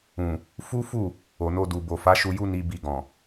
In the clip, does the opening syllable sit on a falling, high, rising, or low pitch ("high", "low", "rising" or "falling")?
low